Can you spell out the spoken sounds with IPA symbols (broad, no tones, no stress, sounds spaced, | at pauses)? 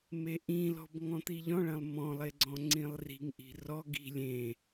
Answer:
m e ʔ ĩ l ɔ̤ b ŋ ɔ̃ t̪ i ʎ ɔ̃ ɭ ɐ̃ lˠ m ɔ̃ lˠ e ɡ͡ǀ ɔ̃ ŋ͡ǀ ĩ lˠ r i̤ ŋ ʔ i̤ r ɔ ɡ i̤ lʲ ẽ